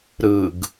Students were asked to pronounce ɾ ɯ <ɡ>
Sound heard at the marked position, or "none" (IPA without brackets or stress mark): ɡ